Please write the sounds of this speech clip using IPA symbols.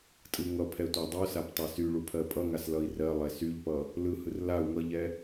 tʼɯŋʌpʰɛ tʷadˤusap tˤasyɭu pʰɜpʼʌŋas lʌi̯rɜlˠɛ syʎpʌ | lɯhɯr lau̯ ŋʌʎɛ

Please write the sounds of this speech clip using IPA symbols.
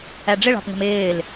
æɖ͡ʐɪɭɑ̤pŋə̤m ɪːl

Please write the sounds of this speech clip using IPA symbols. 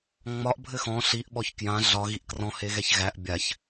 ŋ͡mɒʔ bʱɘxɔ̃ ɬiʔɓɔç kjã ɮɒ ɣiʔkrɔ̃ heɣɛçɣæʔ bʲaç

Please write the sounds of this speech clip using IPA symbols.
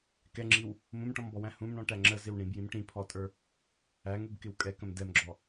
kɛŋ͡ǁiw | mũmʈɔ̃mbɔwæ̃ hũmɳɔ̃ʈæ ŋ͡ǁəzɪw ɳĩbjĩm ʈĩpʰɔtʼə˞ | æŋubkɪw kʼɛkə̃m dɛmɡ͡ǁɔ

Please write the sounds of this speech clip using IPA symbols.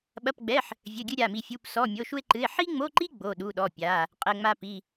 ɓɐ˧˥˧pɡ͡bɛ˧˥˧ħ | vʲɘ˧˥˧ɡʲɨ˥ ɾʲa˧˥˧mi˥ fʲu˧˥˧psɔ˧˥˧ mʲo˧˥˧ʃu˥e̯ǃɨ˧˥˧e̯ ħi˥ŋ͡mo˧˥˧ǃi˥ ɡ͡bo˧˥˧ɗu˧˥˧ɗɔ˧˥˧ pʲa˧˥˧ | qʼɘ˧˥˧ŋ͡ma˥pi˧˥˧

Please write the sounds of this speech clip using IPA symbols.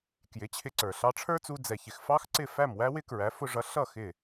kjɪ˩˥t͡ɕʰɪ˧ǀə˞˩ ɬɑ˧ʈ͡ʂʰə˞˥t͡su˧ d͡zɛ˩çɪ˩x fɑ˥xǀɪ˥˩ fæ˥˩mwæ˥ wɪ˥kɹæ˩˥ fʊ˧ʐʌ˩˥ ɬʌ˥˩ xɪ˥˩

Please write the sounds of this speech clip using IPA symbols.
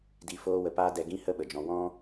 di˧foː˦wə˧ paː˦dɛ˧ ɡĩ˦hə˦ɓə˨d͡ʒɔ̃˧ wɔ̃˦

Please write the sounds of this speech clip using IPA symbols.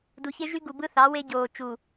du˨çe˦ ʒy˦ ɡu˨bɯ˦θɑ˨˦we˦ ɟoː˨t͡ʃu˨

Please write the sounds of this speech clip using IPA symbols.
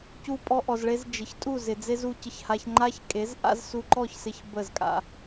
cu˧pʼɔ˧ʔɔ˨zɭe˧z d͡ʒɪ˨çtʼu˦˨zɪ˨ d͡ze˦zu˧cɪ˧çha˧ç ŋ͡ǃa˦çkʼe˨˦z ʔa̰˦zsu˧ǃɔ˦˨çsɪ˧ç bə˦˨zkʼa̰˧

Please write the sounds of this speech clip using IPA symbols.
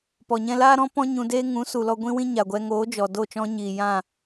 pɔ˨ ɲɛ̃˧laː˦ ɾɔ̃˦ pɔ̃˦ ɲũ˧deː˦ ŋũ˨˦ su˨lɔ˧ɡʷĩ˦wĩ˦ ɲa˨ɡʷɛ˧ ŋoː˨˦d͡ʒɔ˨ do˦˨t͡ʃɔ̃˦ɲiː˨ jã˦˨

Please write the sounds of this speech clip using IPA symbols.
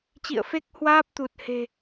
t͡ɕḭ˧˨ə̯fe˦˥k̚hwaː˦˥p̚ t̪u˨˩t̚he̤˨˩

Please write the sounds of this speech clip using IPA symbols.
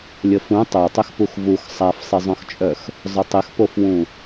lʲəfũ tˤotˤʏxpux vux sˤafsˤɪzˤœ̃xt͡ʃʼœx | zˤʊtˤɪxpofwũ

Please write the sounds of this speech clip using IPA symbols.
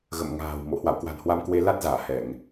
ɣə̰˧˨mŋa̤ː˨˩wmo̰˧˨ hwa̰˧˨wkwa̤˨˩nhwa˧mkwe˧ la˦˥t̚zaː˧˩ hɛ˧˩˨ŋ

